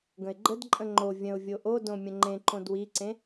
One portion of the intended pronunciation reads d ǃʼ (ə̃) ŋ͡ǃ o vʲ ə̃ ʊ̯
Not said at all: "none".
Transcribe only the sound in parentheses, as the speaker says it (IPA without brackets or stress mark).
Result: ə̃